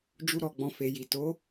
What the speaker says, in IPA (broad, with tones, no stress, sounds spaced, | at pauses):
d͡ʒ u˦ ɾ ɔ˧ ɡ͡b ɔ̃˧ f e˨ j i˨ t o˨˦